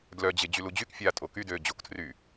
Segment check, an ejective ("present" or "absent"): present